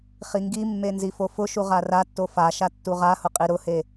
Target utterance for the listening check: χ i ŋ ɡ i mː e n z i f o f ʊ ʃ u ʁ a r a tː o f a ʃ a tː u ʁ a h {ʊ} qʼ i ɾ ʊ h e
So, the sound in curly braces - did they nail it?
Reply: yes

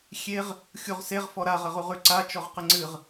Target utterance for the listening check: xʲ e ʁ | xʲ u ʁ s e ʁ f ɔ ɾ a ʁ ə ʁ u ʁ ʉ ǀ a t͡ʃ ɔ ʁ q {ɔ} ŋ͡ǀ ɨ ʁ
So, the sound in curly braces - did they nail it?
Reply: no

